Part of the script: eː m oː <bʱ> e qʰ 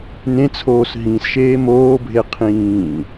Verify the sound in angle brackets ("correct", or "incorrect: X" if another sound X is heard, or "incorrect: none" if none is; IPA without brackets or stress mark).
correct